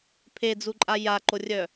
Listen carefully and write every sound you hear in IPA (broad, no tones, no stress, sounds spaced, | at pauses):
pʰ e d͡z u ǃʼ a j a ǃ o rʲ œ